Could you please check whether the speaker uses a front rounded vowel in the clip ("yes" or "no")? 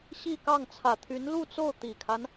yes